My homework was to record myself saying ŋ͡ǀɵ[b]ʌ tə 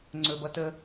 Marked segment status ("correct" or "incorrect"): correct